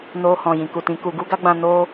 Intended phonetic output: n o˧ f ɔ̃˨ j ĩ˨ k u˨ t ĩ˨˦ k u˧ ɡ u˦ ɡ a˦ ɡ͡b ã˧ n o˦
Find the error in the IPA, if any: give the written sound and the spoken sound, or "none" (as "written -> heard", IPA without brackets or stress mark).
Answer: f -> h